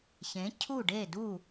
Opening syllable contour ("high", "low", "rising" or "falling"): rising